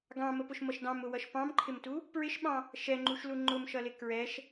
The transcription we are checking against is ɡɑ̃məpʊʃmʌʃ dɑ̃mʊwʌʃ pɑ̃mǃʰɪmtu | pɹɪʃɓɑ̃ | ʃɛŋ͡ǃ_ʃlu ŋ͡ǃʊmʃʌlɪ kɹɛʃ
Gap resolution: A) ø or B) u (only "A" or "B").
B